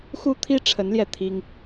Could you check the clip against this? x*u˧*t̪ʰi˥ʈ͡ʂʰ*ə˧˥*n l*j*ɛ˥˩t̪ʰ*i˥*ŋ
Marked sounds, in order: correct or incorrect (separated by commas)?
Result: incorrect, correct, correct, correct